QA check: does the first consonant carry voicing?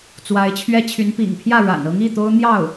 no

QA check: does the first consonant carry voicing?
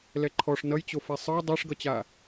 yes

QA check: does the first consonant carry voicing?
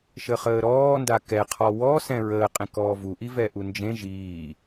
no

